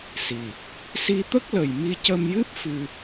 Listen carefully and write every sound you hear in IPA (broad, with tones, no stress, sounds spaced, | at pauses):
s i˨˩ | s i˧ t̪ ə˦˥ k̚ l ə˨˩ j m i˧ c ə˧ m j ɨ˦˥ p̚ f ɨ˧